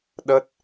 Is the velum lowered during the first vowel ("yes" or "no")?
no